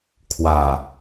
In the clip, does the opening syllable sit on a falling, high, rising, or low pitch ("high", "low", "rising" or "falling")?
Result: low